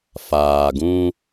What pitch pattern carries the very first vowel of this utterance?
low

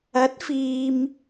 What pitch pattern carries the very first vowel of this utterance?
rising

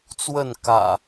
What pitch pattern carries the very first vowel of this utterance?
falling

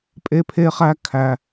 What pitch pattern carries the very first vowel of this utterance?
high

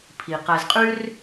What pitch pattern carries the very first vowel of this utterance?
low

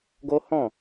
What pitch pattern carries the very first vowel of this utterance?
high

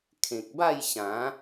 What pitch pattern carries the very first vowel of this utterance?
low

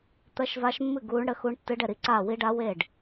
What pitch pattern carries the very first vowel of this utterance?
rising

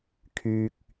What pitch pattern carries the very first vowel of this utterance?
low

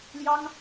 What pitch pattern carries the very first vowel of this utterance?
high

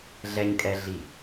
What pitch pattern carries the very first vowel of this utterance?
high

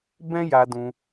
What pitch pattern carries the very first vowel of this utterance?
high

